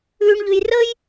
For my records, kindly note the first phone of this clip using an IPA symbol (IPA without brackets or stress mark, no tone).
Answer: ʉː